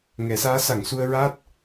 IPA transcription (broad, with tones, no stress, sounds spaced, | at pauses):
ŋ ɛ˨˩˦ s aː˧˥ s a˨˩˨ ŋ s u˧ ə̯ ɹ aː˦˥ t̚